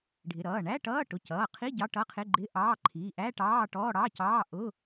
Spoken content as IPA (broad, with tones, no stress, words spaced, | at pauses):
ɖʱɪ˩˧˩ɾʌː˩˧˩ ɳæ˧˥˧ʈʌː˧˥˧ ʈʊ˩˧˩cʌː˩˧˩qʰi˧˥˧ ɟɑ˧˥˧ʈʌ˧˥˧qʰɪ˧˥˧ ɡ͡ǃɪ˧˥˧ʔɑː˧˥˧ ǃʰi˩˧˩ʔæ˧˥˧ ʈɑː˧˥˧ʈɔː˧˥˧ɽɑ˧˥˧ cɑː˧˥˧ʔʊ˧˥˧